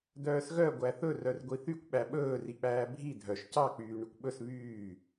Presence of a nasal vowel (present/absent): absent